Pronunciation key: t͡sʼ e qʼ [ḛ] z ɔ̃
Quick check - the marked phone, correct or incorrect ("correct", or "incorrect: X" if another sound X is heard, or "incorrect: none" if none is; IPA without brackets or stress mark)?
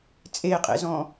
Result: correct